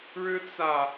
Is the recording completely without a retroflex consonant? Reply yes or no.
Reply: no